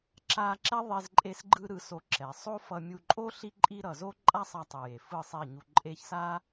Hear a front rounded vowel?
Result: no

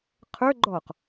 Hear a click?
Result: yes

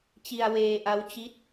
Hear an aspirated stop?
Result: no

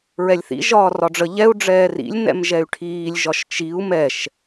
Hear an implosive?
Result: no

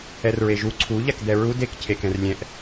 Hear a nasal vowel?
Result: yes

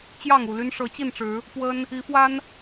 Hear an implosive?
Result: no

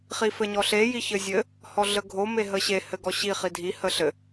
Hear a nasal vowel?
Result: no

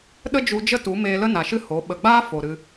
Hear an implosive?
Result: yes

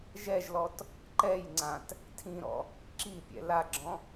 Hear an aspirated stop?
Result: yes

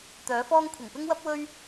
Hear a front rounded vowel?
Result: yes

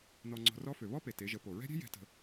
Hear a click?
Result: yes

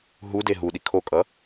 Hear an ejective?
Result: yes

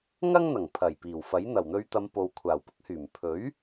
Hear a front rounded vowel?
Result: yes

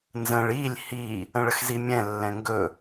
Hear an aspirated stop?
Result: no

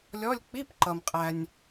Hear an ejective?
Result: yes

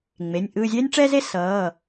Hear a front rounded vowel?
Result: no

